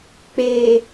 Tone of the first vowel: low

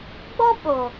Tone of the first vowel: high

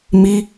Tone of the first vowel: high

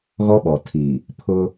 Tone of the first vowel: high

